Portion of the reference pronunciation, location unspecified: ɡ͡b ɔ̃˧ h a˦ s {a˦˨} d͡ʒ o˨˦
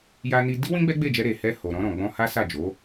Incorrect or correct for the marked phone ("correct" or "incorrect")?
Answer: correct